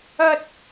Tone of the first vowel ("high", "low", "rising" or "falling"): high